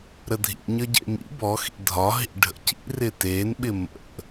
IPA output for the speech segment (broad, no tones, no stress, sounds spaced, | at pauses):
ɾ ə dʱ ḭ ɲ ə ɟ ḛ m ḭ b ɔ x ḭ dʱ ɒ ɦ ḭ ɖʱ ə̰ c ḭ r ɪ t e n ɓ ɪ m ə̰